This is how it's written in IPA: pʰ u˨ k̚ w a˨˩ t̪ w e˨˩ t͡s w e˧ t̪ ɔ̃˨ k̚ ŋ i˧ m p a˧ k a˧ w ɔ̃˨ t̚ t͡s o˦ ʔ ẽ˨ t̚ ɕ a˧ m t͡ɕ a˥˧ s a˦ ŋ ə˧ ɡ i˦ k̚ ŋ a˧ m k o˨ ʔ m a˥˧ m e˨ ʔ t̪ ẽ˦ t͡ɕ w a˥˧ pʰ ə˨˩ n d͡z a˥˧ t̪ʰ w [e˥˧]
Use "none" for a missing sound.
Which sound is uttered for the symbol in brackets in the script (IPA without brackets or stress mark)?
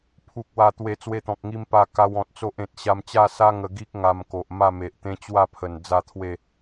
e˥˧